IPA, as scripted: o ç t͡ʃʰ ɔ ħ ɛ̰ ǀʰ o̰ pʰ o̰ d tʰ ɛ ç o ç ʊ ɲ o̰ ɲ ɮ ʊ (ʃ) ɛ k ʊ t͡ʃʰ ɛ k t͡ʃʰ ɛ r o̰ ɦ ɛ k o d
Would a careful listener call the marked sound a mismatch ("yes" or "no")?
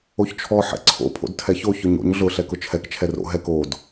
yes